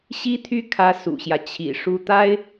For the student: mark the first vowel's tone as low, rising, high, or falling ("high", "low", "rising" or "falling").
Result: high